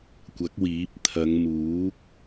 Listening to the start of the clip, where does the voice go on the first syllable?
rising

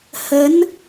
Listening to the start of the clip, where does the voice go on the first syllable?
rising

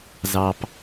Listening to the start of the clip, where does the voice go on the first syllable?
low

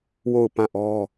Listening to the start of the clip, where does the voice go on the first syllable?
falling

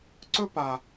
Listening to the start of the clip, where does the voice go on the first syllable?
high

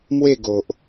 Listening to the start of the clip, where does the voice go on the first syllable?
falling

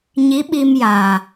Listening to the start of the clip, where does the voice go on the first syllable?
rising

